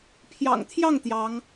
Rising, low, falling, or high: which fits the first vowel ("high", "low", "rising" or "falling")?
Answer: low